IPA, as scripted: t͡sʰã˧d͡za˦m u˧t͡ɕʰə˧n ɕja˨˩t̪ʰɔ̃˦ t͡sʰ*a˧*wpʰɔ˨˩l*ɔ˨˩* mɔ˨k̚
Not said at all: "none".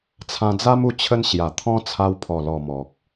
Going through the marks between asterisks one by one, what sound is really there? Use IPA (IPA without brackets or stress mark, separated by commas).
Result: a˧, ɔ˨˩